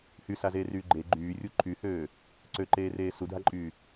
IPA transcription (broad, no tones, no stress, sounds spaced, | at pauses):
h y s a z eː r yː ɡ͡ǃ e ɡ͡ǃ yː rʲ u ǃʰ y h øː | ǀ ø ǃ eː r eː s u dʱ a ǃʼ yː